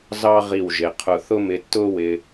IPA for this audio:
z ɑ˥ ʁ i˧˩ w ʒ ɪ˩˧ qʰ ʊ˧˩ θ ʊ˥ m ɪ˧ tː ʊː˥ w ɪ˧

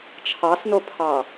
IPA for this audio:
t͡ʃʰ ɑ s n o pʰ ɑ

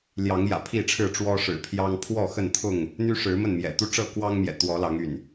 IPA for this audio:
l j ɑ˨˦ ŋ j ä̰˨˩ pʰ i˥˨ ʈ͡ʂʰ ɻ̩˥˨ ʈ͡ʂ w ɔ˦ ʂ ɻ̩˨˩ pʰ j ɑ˦ ŋ pʰ w ɔ˥˨ x ə˥˨ n t̪ʰ ʊ˥˨ ŋ | n̪ y˦ ʂ ɻ̩˨˦ m ə˥˨ n m j ɛ̰˨˩ t̪ u˦ ʈ͡ʂ ɤ˥˨ k w ɑ˦ ŋ m j ɛ̰˨˩ t̪ w ɔ˨˦ l ɑ˨˦ ŋ y̰˨˩ n

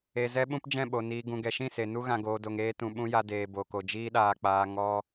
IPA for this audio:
e˨ z ɛ˦ ɓ ũ˦ p d͡ʒ ɛ̃˦˨ ɓ o˨ n iː˨ ɡ ũ˨ ɡ ɛ˨ ʃ ĩ˦˨ s e˨ n u˦ ɣ ã˧ ɡ oː˧ d o˧ ŋ eː˧ t ũ˨ ɓ ũ˦ j a˧ d eː˨ b o˨ k o˨ d͡ʒ iː˦ ɗ aː˧ k͡p aː˧ ŋ ɔ˦

